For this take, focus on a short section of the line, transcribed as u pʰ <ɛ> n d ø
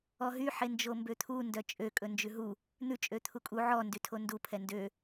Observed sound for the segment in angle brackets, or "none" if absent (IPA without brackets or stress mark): ɛ